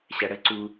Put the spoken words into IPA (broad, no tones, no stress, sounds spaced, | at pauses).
ɕ æ ɽ ə ǀ u